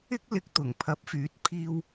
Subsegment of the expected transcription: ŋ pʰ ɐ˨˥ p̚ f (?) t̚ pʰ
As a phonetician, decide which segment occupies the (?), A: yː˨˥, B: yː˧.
A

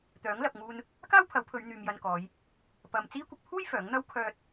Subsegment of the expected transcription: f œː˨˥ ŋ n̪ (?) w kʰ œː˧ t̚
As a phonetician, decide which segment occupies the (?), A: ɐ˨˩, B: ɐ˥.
B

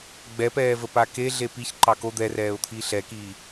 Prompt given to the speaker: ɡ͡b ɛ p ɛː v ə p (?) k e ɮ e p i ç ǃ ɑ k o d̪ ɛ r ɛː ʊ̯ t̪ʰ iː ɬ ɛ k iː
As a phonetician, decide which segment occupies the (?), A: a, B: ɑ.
A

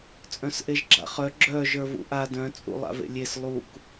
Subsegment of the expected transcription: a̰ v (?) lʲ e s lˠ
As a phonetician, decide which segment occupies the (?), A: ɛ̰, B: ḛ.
B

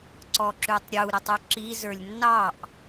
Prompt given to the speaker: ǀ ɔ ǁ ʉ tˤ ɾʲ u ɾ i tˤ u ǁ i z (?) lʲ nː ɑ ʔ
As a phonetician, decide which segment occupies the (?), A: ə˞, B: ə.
A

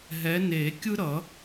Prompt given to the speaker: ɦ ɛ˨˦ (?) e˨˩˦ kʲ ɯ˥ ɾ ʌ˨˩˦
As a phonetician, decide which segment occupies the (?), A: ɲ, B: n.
B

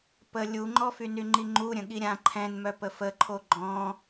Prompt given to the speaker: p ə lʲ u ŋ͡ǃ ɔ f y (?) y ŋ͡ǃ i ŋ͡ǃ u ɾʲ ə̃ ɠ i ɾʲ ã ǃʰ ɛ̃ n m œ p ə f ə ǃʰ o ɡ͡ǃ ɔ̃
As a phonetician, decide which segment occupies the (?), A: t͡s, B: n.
B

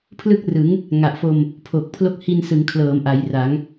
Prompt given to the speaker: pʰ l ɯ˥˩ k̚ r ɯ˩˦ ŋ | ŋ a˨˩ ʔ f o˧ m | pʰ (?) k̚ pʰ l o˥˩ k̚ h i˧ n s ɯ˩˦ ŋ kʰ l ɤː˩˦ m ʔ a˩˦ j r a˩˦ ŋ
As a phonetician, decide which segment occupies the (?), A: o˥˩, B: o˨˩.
B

